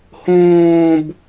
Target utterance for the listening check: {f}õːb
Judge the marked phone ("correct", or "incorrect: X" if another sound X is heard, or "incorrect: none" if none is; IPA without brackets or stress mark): incorrect: h